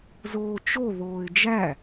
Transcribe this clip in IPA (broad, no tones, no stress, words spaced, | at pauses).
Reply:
zoːt͡ʃo ðoːɪ̯d͡ʒæ